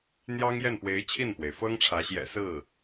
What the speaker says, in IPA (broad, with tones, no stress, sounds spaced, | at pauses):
n̪ j ɑ˥ ŋ j ɛ˥˩ n p w e˧˥ ɪ̯ t͡ɕʰ i˥˩ n f w e˩ ɪ̯ f ɤ˥ ŋ ʈ͡ʂʰ ä˧˥ ɕ j ɛ̰˨˩ s ɹ̩˥˩